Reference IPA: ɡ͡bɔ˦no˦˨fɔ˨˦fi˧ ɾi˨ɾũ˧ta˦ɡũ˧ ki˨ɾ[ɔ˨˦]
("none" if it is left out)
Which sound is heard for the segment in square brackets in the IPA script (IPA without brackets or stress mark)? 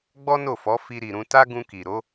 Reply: o˨˦